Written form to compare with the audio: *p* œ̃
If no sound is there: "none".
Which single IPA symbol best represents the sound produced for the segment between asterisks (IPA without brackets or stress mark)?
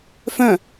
f